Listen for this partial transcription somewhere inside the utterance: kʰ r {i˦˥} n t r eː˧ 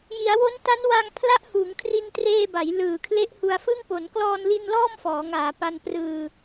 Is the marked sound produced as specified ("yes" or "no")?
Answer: no